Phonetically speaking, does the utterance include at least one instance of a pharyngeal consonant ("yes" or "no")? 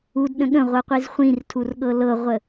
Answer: no